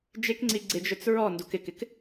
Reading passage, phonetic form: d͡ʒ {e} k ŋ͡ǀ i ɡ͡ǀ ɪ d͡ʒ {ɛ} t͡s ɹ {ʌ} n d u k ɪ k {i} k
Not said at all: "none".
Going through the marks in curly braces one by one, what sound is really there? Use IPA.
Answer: e, œ, ɔ, ɪ

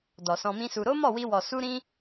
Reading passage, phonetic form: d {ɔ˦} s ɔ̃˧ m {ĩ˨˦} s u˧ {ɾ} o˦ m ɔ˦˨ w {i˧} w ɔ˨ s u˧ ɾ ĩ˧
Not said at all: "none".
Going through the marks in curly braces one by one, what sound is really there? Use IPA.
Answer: ɔ˨, ĩ˦, ɾ, i˧

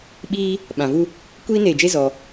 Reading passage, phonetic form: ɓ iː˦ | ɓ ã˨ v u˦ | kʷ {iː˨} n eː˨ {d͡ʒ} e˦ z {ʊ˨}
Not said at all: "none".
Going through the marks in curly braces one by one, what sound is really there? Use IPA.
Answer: iː˦, d͡ʒ, ɔ˨

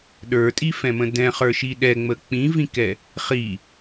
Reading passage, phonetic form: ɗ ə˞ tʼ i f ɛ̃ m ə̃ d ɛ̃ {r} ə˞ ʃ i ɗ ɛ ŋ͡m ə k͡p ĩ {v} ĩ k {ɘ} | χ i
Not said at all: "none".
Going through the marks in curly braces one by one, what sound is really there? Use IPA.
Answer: χ, v, ɛ

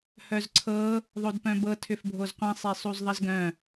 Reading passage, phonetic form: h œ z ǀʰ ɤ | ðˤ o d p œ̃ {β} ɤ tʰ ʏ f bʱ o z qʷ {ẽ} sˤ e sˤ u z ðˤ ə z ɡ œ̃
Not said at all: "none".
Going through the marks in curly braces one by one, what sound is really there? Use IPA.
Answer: b, ɛ̃

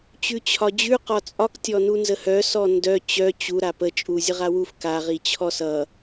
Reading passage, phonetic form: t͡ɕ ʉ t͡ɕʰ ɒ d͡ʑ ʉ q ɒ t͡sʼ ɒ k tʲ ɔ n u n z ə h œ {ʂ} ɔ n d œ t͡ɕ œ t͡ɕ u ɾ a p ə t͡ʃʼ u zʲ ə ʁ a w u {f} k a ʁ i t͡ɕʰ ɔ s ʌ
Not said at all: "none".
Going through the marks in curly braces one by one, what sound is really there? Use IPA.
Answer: s, f

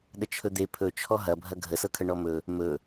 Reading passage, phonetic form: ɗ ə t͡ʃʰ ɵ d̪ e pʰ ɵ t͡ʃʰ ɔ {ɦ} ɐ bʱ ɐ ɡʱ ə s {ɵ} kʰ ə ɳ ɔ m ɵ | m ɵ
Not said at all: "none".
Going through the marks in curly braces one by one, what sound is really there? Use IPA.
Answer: ɦ, ɤ

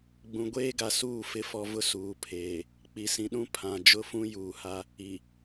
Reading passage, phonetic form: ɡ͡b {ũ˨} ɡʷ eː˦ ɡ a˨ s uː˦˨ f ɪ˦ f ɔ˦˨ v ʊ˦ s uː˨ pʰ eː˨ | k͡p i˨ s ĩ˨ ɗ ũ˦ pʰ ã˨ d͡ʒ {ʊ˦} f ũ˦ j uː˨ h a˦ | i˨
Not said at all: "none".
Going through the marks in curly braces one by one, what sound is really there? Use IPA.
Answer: ũ˨, ʊ˦˨

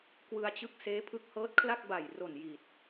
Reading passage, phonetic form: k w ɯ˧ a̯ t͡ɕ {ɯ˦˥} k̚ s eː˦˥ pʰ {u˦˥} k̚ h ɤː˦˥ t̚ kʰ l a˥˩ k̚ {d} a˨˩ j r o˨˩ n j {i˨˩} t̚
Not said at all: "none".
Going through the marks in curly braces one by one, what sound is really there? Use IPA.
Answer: ɯ˦˥, ɯ˦˥, b, i˨˩

